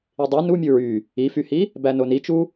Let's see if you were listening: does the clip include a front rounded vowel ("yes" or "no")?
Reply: yes